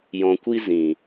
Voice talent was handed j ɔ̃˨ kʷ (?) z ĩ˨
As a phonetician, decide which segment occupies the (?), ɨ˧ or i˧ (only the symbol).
i˧